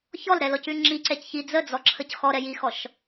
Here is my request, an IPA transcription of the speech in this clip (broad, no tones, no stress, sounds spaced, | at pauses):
ç ɔ l ɾ ɛ l ɔ c ʉ ŋ͡ǁ i ǀ ɛ c ç i d͡z ə d͡z ɔ ǁʰ ə c x ɔ ɾ ɛ j i x ɔ ʃ